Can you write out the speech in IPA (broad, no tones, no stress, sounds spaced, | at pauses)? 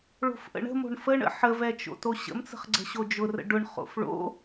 ɭ o̤ f ʔ ə̰ ɳ ə̤ m o̤ ɳ f ə ɳ ə̰ ħ ə v ɛ t͡ʃ o̰ t o ɕ ə̰ m t͡s ə̤ χ ɡ͡ǀ ə̤ ɕ o d͡ʒ ʊ r ə̰ ɖ ʊ ɳ χ o̰ f ɭ o̰